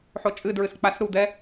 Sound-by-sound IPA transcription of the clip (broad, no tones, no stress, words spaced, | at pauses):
ħot͡ʃʼɨdɹɨs k͡pasɾud̪ɛ